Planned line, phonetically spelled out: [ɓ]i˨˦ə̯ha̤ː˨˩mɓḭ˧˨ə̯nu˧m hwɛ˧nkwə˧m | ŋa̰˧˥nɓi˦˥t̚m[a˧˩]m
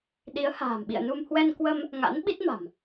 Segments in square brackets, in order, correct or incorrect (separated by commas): incorrect, incorrect